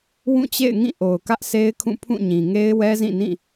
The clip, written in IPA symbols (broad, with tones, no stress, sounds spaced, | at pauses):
w ũ˦˨ t͡ɕ ḛ˦˨ ɪ̯ ŋ ĩ˦˨ ʔ o˨ ʊ̯ k ä˦ ʔ s e˦ ɪ̯ kʰ ũ˦˨ pʰ ũ˦˨ ɲ ĩ˨ ŋ e˦ ɪ̯ w ɛ˦ z ĩ˦˨ n ĩ˦˨